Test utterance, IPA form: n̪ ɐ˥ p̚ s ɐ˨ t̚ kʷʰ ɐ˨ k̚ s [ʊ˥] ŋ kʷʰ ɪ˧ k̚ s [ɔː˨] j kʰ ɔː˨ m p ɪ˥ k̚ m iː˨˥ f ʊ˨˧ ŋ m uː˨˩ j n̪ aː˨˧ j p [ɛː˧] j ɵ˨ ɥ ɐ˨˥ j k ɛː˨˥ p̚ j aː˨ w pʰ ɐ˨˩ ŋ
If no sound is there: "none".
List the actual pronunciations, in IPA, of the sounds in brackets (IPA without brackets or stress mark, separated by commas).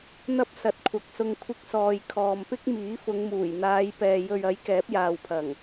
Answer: ʊ˧, ɔː˨, ɛː˨